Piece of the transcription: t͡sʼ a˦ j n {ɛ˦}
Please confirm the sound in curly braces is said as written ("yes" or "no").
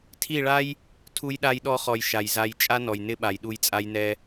yes